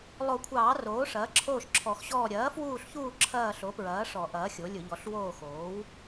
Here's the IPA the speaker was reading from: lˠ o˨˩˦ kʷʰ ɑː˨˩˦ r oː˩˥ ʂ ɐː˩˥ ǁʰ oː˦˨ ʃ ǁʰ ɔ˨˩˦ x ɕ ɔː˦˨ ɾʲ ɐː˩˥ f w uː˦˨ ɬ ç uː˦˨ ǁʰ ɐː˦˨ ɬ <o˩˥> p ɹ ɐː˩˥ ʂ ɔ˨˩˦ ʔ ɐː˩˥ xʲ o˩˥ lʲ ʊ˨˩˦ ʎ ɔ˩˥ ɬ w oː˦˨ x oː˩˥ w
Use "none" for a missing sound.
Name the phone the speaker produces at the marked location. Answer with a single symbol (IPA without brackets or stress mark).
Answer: o˩˥